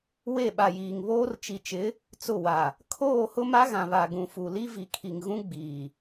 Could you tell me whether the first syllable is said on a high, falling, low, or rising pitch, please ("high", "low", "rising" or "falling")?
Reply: falling